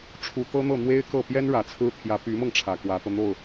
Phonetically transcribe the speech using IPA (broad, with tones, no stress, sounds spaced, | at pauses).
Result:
ʈ͡ʂʰ u˨˩ t̪ ɤ˥ n̪ ɤ˥˩ n̪ w e˥ ɪ̯ k ɤ˥˩ p j ɛ˥ n ɻ ä˨˩ t͡sʰ ɹ̩˥ t̪ʰ j ä˧˥ p y˧˥ m ɤ˧ ŋ ʈ͡ʂʰ ä˨˩ k w ä˧˥ t̪ ɤ˧ n̪ o˥˩ ʊ̯